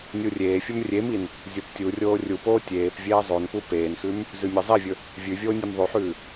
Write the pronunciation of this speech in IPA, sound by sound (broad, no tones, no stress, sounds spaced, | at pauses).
nʲ u rʲ eː fʲ ɵ m rʲ e m i n | zʲ o p tʲ u rʲ oː rʲ u p oː tʲ eː p vʲ eː zˤ o n p u p eː n x ʉ m | z ʉ mʲ e zˤ i vʲ ɵ | vʲ ʉ vʲ oː nʲ e m ðˤ ʉ ħ ʉː